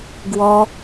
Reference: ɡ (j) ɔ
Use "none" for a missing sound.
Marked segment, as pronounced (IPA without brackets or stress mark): w